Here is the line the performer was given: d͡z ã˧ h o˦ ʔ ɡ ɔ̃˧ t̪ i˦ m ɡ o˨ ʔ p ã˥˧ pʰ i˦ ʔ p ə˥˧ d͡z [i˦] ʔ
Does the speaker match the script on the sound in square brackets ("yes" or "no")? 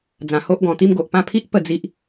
yes